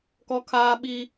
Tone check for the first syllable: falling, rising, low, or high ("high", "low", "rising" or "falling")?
high